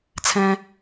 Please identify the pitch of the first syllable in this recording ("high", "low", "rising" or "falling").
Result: low